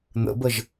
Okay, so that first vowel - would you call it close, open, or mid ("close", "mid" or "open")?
mid